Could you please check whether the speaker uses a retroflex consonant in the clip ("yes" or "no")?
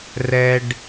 yes